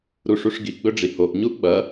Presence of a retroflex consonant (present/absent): present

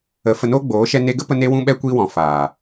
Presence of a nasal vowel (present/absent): present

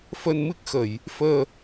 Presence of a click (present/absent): absent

